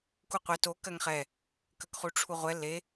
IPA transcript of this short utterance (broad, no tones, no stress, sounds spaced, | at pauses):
k u qʷ ɛ t o k ɜ ŋ χ ɛ | k ə k χ u ʈ͡ʂʰ u ʁʷ ɛ l e